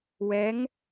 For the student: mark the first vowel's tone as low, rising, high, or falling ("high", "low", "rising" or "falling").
rising